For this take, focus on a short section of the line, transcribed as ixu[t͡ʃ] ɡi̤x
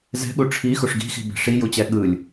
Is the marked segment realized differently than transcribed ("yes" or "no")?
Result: yes